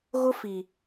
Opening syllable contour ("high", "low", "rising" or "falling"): high